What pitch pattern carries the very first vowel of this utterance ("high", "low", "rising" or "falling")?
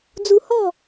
high